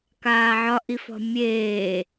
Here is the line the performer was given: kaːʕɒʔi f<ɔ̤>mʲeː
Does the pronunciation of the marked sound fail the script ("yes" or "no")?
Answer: no